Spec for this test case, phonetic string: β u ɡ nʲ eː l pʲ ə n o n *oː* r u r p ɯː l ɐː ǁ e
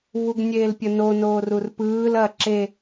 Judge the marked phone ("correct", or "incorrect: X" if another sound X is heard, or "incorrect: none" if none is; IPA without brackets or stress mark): correct